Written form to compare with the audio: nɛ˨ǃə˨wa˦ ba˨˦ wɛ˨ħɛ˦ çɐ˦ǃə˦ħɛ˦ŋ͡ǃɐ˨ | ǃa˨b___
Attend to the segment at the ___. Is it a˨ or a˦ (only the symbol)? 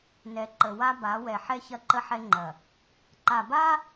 a˦